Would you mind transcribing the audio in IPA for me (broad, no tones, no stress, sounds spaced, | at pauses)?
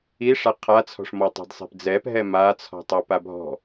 i ʂ a qʰ a t͡sʰ ɔ̤ ʂ m ɔ tˤ ɛ̤ d sˤ ɛ̤ p d͡z ɛ p ɦ ɛ m a t͡sʰ ɔ̤ tˤ ɛ p a bʱ ɔ̤